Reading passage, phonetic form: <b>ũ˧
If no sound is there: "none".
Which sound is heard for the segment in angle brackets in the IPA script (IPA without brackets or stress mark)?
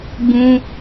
b